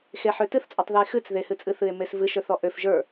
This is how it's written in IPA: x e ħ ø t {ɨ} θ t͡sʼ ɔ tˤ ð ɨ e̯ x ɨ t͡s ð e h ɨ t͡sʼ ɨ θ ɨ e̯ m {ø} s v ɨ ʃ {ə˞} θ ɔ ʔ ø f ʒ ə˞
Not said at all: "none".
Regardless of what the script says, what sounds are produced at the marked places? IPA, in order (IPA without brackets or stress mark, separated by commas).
ɨ, e, ə˞